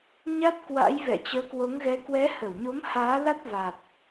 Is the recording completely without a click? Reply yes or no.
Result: yes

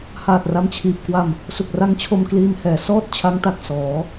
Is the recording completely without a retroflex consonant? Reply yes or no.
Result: yes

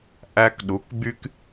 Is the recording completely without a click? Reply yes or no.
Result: yes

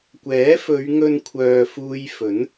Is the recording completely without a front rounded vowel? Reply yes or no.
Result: no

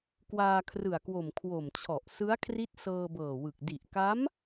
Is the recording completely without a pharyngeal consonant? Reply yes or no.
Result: yes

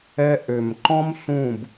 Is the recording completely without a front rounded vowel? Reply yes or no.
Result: no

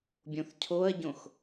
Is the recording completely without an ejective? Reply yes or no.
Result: yes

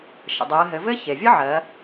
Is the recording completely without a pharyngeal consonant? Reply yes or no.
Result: no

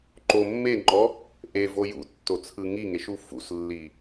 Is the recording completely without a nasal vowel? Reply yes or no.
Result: yes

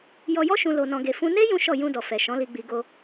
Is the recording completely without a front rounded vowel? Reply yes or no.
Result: yes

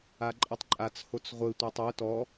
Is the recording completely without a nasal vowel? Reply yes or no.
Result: yes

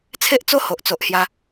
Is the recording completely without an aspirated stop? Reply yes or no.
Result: no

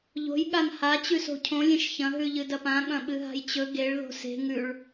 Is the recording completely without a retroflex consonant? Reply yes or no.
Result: no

